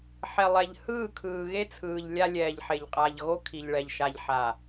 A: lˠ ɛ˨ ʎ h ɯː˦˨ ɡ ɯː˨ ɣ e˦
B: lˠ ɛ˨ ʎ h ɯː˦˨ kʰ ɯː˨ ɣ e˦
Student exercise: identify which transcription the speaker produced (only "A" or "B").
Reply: B